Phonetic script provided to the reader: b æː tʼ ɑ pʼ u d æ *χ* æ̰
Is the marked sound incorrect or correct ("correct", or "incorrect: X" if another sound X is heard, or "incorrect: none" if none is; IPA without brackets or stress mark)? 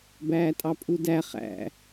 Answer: correct